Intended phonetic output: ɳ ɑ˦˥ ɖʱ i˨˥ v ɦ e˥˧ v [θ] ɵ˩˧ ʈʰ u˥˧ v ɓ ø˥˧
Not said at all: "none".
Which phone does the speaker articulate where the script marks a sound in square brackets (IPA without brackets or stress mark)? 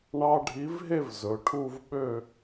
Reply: z